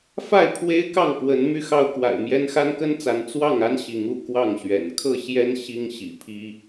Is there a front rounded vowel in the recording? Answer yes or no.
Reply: yes